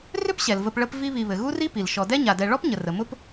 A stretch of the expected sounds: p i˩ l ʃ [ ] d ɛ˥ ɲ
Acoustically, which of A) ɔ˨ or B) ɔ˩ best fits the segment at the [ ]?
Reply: A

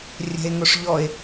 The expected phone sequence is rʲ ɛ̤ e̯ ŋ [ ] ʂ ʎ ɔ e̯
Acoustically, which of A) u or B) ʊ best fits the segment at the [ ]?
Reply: B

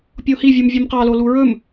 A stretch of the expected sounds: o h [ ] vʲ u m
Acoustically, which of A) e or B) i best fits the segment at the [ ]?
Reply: B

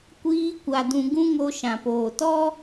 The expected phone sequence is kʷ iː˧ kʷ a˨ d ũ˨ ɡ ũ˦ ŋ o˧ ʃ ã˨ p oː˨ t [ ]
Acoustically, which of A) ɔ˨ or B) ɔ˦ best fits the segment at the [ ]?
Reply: B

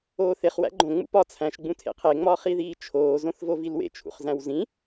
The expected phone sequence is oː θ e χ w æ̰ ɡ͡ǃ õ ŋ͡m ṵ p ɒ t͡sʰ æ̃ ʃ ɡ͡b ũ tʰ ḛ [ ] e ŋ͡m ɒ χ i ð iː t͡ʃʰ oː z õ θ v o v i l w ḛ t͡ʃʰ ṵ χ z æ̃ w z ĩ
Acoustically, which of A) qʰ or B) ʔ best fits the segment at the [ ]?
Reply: A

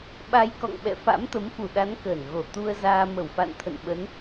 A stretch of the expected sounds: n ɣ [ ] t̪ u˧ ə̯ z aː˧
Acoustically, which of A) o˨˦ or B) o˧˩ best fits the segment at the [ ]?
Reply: B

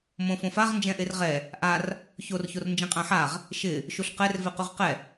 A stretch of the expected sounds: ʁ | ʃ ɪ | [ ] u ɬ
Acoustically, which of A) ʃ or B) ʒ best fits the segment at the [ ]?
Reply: A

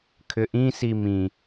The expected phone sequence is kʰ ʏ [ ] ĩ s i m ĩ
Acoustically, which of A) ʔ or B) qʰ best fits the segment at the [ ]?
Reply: A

